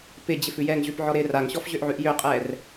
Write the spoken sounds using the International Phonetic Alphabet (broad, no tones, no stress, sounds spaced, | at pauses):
p ɪ d͡ʑ ɪ f ʉ j ɛː ŋ ʑ ʉ p ʕ ɔ ɾ ɪː r a ŋ ɕ ɔ f ʑ ø ʔ ʕ ʉ ʔ j ø qʼ ɛː r